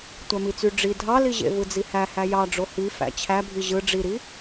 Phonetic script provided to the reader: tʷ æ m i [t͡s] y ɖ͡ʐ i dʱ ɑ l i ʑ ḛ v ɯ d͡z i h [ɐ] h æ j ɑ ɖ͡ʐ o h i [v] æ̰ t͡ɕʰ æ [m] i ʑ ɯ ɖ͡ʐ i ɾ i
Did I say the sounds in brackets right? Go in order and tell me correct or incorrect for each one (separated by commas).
correct, incorrect, incorrect, incorrect